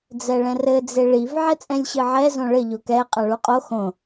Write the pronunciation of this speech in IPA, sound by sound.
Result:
d͡zɛɭɛ̃rɘ d͡zeɭiv ʕɛt͡sʼɛ̃lʲɕɨʕɛ zõɭɘ ʎokɛ qʼaɭuqʼo xõ

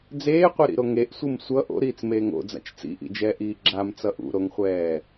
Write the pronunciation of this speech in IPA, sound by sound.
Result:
d͡zeːqʷeɾḭɾo ŋeʔsʷɯm sʷʌ ʔo̰ɾiːt͡smeːŋ o̰d͡za̰t͡ʃ t͡sḭʔḭd͡ʒɛːʔiː ɡ͡ǁamt͡sʌʔ ṵɾoŋχʷɛː

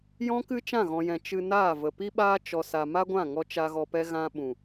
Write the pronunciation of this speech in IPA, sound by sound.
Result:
jɔ̃˦kɨ˦ t͡ʃã˦˨ɣɔ̃˨jɛ̃˨ t͡ʃɨ˧naː˦˨və˨ pi˧ɓaː˧ t͡ʃɔ˧sa˧ ma˧ ɡʷã˦˨ŋɔ˧ t͡ʃa˧ ɣɔ˧pɛ˦ ɣã˧ɓũ˨

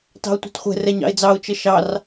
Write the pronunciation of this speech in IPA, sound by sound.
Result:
tɑ̤ʊ̯tʷɑ̤tχʷɛ̤ rɛɲɑ̰ɪ̯d͡zɑʊ̯ t͡ʃəʃɑr

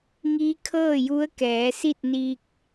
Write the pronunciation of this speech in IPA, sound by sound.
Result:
ŋiː˧˥ kʰɤː˥˨ju˧˥ə̯kɛː˩˧ si˥˨t̚niː˧k̚

